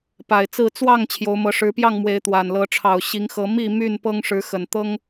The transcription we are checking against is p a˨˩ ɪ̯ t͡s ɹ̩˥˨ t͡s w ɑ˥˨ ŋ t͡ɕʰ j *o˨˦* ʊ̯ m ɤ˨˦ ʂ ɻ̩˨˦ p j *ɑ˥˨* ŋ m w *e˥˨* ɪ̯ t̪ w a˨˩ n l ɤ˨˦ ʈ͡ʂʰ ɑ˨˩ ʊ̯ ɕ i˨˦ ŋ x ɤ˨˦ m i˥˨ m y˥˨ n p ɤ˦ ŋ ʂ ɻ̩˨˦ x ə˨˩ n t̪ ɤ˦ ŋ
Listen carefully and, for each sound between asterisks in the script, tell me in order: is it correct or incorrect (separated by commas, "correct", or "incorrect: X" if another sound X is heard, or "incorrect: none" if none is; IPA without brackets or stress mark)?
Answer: correct, correct, incorrect: e˨˦